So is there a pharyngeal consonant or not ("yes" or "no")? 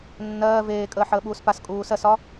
yes